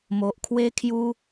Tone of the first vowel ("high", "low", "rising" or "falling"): low